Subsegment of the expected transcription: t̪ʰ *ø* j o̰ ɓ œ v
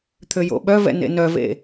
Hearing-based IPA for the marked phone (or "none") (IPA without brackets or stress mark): ø